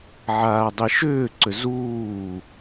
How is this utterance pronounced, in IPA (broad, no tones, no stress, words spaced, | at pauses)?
ʕaːdˤiʃʏːǀʏ zuː